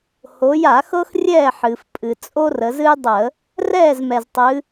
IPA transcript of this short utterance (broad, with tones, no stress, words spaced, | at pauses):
ho˩˧ja˧˩˧ xɤ˥xrʲɛː˥˨ħɨː˩f pʼɨ˩ t͡sʼo˥rə˩˧zɨ˥jdˤə˧˩˧ | rɛː˥˨zmɛ˩ztˤɨ˩˧